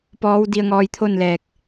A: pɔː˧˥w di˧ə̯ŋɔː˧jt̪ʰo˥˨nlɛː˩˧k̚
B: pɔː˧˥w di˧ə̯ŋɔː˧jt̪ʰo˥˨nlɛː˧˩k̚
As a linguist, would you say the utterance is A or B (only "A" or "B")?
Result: B